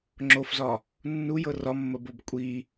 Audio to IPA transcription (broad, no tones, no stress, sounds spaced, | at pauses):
ŋ͡ǁ o f z ɒ | nː u j ɤ r ɒ mː ə b o b kʷʼ i